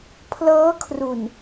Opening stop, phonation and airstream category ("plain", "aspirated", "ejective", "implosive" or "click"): aspirated